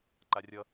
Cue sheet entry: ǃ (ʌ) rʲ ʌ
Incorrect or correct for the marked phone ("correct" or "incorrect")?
incorrect